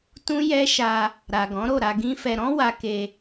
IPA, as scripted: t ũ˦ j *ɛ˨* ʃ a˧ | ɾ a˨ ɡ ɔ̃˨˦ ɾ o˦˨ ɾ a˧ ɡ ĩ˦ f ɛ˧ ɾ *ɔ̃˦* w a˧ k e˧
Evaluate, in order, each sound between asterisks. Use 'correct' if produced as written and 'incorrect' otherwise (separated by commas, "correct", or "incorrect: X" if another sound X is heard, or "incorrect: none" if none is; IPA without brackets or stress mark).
incorrect: ɛ˦, correct